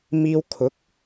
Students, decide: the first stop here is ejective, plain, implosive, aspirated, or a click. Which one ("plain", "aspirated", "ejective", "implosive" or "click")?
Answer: aspirated